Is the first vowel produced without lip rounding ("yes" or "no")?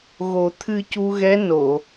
no